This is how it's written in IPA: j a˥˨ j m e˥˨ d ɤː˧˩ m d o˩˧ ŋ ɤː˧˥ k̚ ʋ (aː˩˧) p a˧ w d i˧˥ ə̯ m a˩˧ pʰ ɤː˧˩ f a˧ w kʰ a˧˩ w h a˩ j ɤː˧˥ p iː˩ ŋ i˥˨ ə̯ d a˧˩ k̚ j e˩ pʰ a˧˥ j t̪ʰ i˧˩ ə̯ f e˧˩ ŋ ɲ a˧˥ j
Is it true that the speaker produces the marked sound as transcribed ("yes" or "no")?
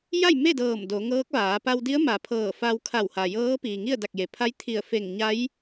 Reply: yes